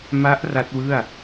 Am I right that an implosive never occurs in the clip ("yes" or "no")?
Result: yes